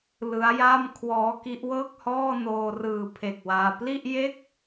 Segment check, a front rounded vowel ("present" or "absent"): absent